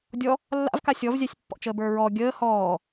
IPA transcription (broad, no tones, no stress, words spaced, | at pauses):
dʲɔ | lːa̰vka sʲɔvzʲasʲpːɔ̰t͡ʃəː bə˞ɹɔ ɡʲəː hɔː